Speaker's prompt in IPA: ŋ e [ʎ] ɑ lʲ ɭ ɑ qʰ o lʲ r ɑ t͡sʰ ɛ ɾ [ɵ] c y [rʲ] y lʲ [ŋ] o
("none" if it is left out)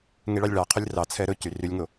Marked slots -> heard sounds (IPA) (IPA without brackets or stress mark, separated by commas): ɭ, ɵ, r, ŋ